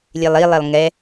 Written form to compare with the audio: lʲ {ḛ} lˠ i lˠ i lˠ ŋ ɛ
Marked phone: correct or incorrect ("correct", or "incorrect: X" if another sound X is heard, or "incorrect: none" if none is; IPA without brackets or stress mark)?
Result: incorrect: e